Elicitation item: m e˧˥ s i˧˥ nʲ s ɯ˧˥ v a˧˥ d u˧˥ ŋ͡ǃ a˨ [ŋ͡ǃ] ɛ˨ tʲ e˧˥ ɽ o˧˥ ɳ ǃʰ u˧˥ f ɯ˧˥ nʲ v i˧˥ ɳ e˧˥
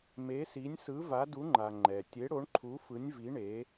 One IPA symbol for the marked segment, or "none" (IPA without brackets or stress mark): ŋ͡ǃ